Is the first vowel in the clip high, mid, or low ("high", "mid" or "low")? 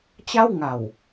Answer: low